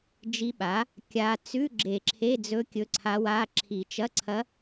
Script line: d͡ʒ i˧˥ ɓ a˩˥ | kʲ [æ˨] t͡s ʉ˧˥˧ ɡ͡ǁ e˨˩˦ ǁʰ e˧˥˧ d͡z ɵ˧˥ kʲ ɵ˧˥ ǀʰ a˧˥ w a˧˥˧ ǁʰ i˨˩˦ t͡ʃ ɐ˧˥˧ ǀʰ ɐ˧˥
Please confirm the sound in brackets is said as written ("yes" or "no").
no